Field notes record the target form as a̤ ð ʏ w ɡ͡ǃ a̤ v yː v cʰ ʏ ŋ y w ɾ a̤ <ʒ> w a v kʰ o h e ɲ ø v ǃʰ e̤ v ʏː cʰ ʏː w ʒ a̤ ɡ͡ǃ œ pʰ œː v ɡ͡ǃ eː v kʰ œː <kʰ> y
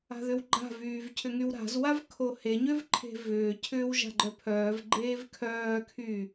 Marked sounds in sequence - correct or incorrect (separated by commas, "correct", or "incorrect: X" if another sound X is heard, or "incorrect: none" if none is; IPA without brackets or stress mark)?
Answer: incorrect: z, correct